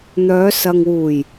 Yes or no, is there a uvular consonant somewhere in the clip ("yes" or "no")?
no